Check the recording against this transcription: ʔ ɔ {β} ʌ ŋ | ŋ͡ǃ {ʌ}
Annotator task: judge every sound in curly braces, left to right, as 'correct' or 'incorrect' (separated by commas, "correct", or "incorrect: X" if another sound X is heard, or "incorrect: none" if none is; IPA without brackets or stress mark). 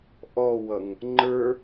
incorrect: w, incorrect: ə˞